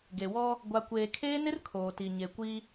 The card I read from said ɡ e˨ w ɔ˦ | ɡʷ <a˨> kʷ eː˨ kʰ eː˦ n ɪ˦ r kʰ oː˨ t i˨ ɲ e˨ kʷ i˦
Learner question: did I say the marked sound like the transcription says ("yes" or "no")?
yes